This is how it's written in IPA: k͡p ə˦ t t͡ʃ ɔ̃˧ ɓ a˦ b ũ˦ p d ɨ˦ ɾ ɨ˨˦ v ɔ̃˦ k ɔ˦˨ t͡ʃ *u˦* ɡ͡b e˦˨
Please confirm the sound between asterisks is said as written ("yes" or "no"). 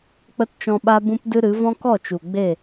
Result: no